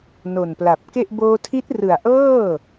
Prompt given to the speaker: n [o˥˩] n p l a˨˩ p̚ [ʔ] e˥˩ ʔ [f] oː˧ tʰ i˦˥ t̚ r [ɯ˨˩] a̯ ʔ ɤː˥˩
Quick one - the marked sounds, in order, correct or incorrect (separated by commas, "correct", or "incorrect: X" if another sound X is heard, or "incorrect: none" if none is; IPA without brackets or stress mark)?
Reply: incorrect: o˨˩, incorrect: k, incorrect: b, correct